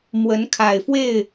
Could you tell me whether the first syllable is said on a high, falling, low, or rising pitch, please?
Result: rising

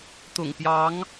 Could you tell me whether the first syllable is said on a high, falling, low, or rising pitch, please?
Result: low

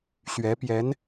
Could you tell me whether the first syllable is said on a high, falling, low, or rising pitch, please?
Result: rising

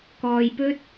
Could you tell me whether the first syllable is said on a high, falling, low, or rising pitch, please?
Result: low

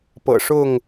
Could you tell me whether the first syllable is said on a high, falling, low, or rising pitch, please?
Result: low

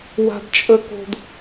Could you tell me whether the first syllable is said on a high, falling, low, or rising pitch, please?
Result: high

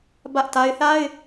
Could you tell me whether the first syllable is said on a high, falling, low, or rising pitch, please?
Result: high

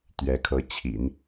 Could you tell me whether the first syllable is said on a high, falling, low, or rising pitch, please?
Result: rising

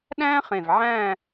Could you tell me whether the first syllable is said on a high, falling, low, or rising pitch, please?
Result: high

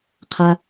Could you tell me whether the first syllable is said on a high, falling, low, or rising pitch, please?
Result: low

